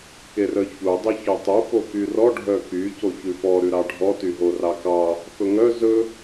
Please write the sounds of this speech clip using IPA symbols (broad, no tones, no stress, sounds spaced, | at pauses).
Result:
k e r œ ç u dˤ e ç œ tˤ u f o k y r ɔ ɖʱ œ k y c o ç ʉ f ɔ ɾ ʉ ɾ ɑ ɖʱ ɔ t y ɦ o r ɑ k ɑ | f ɵ ŋ œ z ɵ